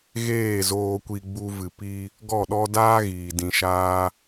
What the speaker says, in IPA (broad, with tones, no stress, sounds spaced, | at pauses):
ɣ eː˦˨ z oː˧ kʷ i˧ ɡ͡b u˧ v ɨ˨ p i˧ | ɡ ɔ˦˨ ɗ ɔ˦ d aː˦ ɣ iː˨ d ĩ˧ ʃ aː˦